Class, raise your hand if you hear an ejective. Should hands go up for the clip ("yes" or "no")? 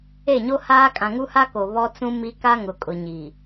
yes